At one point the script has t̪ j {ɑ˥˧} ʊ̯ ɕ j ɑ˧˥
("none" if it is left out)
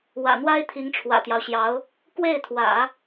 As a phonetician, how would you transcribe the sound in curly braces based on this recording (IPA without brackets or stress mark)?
ɑ˦